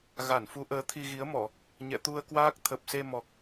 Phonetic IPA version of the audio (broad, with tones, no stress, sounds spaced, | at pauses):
ɣ a˧˩ n f u˨˦ ʔ əː˨˦ t̪ʰ i˧ ɣ i˨˦ ə̯ m ɔ˧˩˨ | ɲ ɛ̰˧˨ t̪ u˧ ə̯ k w aː˦˥ k̚ t̪ʰ ə˨˩ p̚ s e˧ m ɔ˨˩ k̚